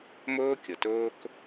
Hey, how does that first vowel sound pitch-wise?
high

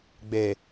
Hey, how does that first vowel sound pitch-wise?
low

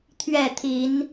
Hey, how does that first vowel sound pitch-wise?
falling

